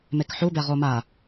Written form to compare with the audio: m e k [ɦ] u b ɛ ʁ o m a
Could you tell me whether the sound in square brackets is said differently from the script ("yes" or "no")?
yes